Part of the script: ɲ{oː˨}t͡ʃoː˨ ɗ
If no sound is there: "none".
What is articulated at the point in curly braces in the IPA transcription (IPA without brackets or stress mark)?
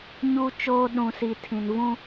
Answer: uː˨